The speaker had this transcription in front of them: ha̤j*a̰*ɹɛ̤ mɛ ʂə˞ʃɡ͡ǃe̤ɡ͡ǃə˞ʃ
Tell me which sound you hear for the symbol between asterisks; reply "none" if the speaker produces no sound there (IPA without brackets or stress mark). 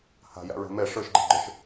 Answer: a̰